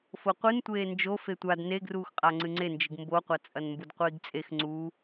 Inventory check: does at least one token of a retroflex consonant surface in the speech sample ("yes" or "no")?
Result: no